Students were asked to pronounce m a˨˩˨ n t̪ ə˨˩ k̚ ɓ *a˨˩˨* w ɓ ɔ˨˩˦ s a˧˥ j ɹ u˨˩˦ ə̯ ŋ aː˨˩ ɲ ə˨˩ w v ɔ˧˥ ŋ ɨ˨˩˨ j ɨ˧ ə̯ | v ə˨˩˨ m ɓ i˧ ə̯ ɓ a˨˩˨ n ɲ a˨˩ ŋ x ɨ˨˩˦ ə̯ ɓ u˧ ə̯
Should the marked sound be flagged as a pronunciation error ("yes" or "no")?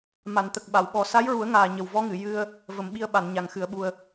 no